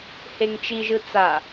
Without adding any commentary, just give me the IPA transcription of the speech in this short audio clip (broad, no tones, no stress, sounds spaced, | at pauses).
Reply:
h e ŋ t͡ʃ i ʒ ɯ t͡s a